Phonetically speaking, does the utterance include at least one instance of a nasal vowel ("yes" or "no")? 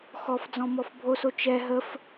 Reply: yes